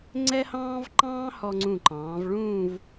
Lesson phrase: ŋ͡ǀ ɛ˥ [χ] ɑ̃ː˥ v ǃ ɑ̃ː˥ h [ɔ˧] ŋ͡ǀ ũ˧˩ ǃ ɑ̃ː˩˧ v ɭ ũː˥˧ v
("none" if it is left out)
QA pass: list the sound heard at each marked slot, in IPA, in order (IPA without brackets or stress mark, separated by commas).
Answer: h, ɔ˧